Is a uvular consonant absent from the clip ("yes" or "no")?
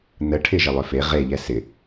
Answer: no